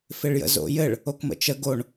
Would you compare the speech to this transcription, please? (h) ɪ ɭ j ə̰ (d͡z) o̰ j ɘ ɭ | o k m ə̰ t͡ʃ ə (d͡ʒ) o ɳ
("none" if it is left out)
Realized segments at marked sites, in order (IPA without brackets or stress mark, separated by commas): f, z, ɡ